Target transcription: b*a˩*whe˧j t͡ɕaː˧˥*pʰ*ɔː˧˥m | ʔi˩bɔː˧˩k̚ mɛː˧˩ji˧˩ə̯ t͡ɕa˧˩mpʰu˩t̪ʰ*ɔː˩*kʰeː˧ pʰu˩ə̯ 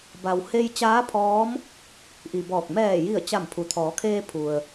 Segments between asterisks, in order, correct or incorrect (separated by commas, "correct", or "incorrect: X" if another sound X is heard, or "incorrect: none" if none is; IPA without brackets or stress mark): correct, correct, incorrect: ɔː˩˧